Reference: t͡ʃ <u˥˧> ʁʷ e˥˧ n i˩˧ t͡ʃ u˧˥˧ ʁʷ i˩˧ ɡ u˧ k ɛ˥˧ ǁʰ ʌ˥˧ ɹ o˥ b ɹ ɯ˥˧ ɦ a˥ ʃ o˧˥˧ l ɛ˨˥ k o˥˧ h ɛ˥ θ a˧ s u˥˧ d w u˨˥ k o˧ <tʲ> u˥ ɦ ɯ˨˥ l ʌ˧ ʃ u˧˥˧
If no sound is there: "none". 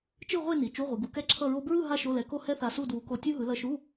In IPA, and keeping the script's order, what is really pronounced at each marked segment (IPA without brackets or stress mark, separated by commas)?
ɯ˥˧, tʲ